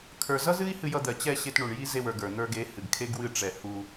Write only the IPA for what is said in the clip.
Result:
kʰ ə˞˧ z ʌ˦ z ɨ˦ i̯ h ɨ˧ j ʌ˧ d̪ ɜ˨ t͡ɕ ɛ˦˨ ɕ e˧ t ɳ u˨ ɳ j i˦ z e˧ w ə˞˨ ɡ ə˞˨ n̪ ə˞˧ ɡ e˨˦ h ɨ˨ ɡ kʰ e˦ ɡ w ɨ˦˨ ʈ͡ʂ ɛ˨ h u˧

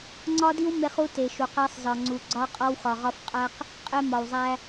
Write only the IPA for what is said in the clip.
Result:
ŋ͡ǀ ɒ˦ d i˦ w m e˦ χ u˦ t e˨ ʃ u˨ q æ˦ sˤ z ɒ˨ ŋ͡ǀ u˨ ɡ͡ǀ ɒ˦ qʼ ɒ˦ w x ɒ˨ ʁ ɒ˦ f qʼ æ˦ q | qʼ e˦ m ɒ˨ w zˤ æ˦

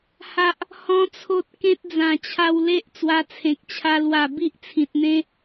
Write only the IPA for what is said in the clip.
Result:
h a˦ ʔ | h ɔ̃˦ t͡sʰ o˦ t̚ k ẽ˦ t̚ d͡z ã˨˩ t͡ɕʰ a˧ w l e˦ ʔ t͡s w a˧ t͡sʰ ẽ˨ k̚ t͡ɕʰ a˧ l w a˨˩ b i˦ ʔ t͡sʰ ĩ˨ t̚ n̪ ẽ˦

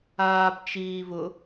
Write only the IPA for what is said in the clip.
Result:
aː b t͡ʃ iː v ʊ

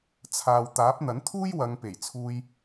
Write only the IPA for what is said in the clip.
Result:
t͡sʰ aː˨ w t̪ aː˨˥ p̚ n̪ ɐ˨˥ n t̪ʰ uː˥ j w ɐ˨˧ ŋ p e˨˩ j t͡sʰ uː˧ j

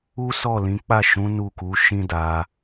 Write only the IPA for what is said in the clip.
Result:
u˦ s ɔ˦˨ l ĩ˨˦ k͡p a˦˨ ʃ ũ˨˦ n u˦˨ k u˨˦ ʃ ĩ˦ d a˧

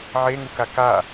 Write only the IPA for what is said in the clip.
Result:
ʕ e ŋ u k a k a

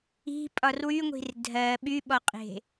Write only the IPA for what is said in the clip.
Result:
i̤ pʼ ɒ r w y ŋʷ i̤ r dʱ ɜ ɓ y ɓ ɔ qʼ e̤

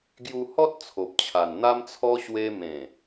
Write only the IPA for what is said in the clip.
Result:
ɡ j u˧ h ɔ˦ t̚ t͡sʰ o˨ p̚ t͡ɕʰ a˨˩ n n̪ a˦ m t͡sʰ ɔ˦ ɕ w e˧ m ẽ˨˩

